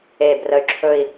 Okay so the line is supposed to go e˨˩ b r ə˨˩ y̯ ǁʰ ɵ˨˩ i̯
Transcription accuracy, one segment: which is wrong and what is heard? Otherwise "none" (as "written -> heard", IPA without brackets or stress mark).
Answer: none